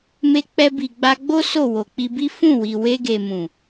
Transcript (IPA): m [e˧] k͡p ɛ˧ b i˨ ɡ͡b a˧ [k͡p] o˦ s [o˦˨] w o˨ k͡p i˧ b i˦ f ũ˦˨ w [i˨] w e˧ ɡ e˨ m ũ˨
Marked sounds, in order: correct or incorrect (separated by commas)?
correct, incorrect, correct, correct